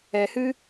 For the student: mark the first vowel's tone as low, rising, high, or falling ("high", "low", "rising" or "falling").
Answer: low